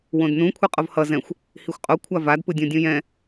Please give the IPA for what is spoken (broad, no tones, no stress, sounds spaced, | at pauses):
w õ d n ũ kʷʰ e qʼ o v h ʌ z ɛ̃ xʷ | h i xʷ qʼ o kʷʰ a v a d p ɯ dʲ õ dʲ ũ j ɛ̃